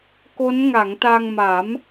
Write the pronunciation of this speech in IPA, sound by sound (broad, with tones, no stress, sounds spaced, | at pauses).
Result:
k o˦˥ n ŋ a˩˦ ŋ t a˧ ŋ m a˩˦ m